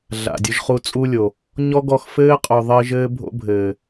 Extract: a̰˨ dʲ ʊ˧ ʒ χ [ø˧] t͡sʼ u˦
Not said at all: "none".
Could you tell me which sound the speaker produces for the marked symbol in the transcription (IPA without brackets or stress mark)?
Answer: u˧